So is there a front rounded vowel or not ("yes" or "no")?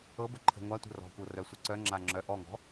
yes